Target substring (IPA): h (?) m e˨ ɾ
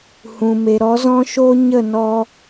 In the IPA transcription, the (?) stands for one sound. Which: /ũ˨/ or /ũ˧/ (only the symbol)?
ũ˨